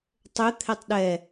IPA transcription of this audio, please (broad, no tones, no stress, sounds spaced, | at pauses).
tˤ ø t̪ʰ ɛ tˤ ɗ ɛ